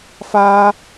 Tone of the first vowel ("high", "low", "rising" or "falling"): high